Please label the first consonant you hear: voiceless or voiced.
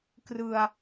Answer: voiceless